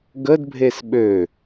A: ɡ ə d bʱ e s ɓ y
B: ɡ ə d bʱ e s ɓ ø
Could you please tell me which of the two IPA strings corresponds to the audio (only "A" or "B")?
B